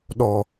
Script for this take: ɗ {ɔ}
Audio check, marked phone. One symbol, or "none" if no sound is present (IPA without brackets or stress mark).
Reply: ɔ